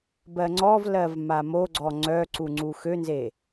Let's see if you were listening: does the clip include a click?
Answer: yes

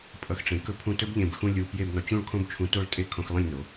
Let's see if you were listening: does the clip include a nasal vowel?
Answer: yes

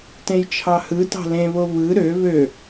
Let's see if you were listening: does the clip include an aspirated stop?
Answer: yes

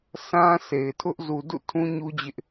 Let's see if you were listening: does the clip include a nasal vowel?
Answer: yes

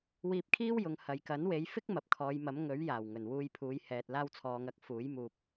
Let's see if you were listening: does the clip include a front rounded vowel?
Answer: no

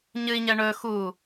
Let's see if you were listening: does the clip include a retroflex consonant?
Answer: yes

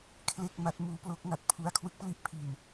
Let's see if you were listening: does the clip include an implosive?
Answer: no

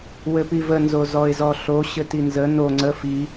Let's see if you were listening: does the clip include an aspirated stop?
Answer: no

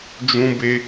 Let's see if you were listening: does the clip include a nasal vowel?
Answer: yes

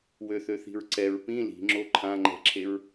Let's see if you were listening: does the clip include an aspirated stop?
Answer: yes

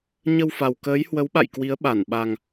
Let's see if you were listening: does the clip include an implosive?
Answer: yes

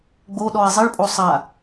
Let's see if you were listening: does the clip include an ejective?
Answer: yes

